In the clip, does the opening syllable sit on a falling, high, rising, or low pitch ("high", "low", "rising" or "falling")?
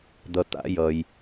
low